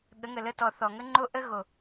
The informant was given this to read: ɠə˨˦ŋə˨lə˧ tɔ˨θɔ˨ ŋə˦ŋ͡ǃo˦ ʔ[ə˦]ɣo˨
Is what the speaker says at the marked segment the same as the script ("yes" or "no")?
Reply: yes